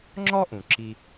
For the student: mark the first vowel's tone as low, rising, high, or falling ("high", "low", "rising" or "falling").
high